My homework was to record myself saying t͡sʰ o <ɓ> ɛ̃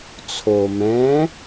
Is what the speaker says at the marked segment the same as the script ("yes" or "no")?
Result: no